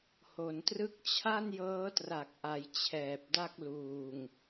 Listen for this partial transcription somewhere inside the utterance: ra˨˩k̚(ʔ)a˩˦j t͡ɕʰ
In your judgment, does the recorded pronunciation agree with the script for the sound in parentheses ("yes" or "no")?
yes